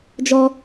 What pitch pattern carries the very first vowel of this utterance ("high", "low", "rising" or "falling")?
high